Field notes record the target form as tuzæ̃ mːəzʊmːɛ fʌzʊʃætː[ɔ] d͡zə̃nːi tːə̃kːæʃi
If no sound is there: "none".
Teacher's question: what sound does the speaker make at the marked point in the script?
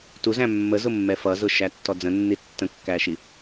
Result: ɔ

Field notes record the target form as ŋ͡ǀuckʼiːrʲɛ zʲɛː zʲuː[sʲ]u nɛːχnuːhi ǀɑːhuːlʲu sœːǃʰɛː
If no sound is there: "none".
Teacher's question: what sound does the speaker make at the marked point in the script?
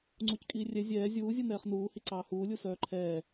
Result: zʲ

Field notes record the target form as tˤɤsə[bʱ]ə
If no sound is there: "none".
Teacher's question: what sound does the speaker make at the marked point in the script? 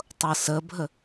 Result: bʱ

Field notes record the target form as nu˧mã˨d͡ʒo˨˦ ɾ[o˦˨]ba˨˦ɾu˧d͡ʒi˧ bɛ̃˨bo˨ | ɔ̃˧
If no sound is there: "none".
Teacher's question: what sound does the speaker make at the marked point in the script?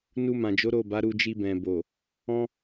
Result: o˦˨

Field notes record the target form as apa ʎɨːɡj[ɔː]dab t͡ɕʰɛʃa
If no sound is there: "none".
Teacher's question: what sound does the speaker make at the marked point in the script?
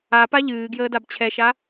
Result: əː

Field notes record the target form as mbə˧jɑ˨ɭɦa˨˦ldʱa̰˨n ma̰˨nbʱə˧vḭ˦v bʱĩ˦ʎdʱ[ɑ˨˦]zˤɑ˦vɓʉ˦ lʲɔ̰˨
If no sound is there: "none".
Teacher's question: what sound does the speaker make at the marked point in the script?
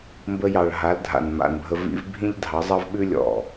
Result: ɑ˨˦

